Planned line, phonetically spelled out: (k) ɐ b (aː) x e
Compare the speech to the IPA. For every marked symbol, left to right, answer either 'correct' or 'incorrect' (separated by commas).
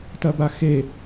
incorrect, incorrect